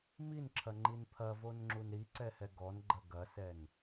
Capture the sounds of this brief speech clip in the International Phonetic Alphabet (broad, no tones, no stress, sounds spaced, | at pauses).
m i n ǁʰ ɐ ŋ͡ǃ i n pʰ ɐ v o n ŋ͡ǁ u n ɾ i ǀ ɛ h ɛ ɡ ɔ n ɡ͡ǃ ɐ ɡ ɐ s ɛ n